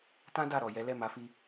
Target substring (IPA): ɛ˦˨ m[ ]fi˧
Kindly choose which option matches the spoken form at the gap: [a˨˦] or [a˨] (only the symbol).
a˨˦